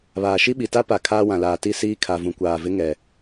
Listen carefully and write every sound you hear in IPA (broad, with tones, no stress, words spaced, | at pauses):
βaː˨ʃi˦ɓi˨ ta˦pa˨ kʰaː˦wã˨laː˨ti˦˨ siː˦kʰa˨ vũ˨kʷaː˨vɪ˦ŋɛ˨